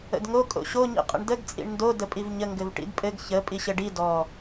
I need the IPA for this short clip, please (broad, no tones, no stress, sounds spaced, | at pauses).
ə̰ d ŋ o kʼ o̰ ɕ o ɲ ḭ qʼ ə̰ ɳ d ə ɡ t͡sʼ ḭ ɳ n d o d ə pʼ i v ɲ ə ŋ ɡ ɘ v ʈ ḭ d pʼ ɘ ɡ ç ə pʼ i ɕ ɘ ɖ i d ɔ